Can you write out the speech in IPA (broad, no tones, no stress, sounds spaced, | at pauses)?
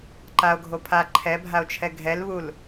ǃ a o̯ ɡʱ o pʰ a ǃʰ ɛ bʱ a o̯ t͡ʃʰ ɛ ɡʱ ɛ l β u l